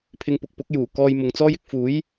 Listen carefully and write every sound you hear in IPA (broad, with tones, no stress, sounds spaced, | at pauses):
pʰ ɪ˧ ŋ p ʊ˨ k̚ p ʊ˨˥ k̚ j uː˨˩ k ɔː˧ j m ʊ˨ ŋ t͡s ɔː˥ j ɪ˨˥ k̚ f uː˨˥ j